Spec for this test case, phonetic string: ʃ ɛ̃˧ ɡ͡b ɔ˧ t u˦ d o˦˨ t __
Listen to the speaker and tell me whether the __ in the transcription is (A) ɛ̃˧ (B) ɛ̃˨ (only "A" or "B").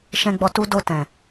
B